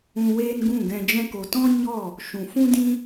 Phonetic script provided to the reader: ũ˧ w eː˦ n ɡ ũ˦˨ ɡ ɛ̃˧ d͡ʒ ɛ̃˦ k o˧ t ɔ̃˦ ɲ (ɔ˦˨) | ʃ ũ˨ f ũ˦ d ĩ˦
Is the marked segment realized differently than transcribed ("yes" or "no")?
no